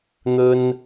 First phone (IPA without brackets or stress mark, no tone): n̪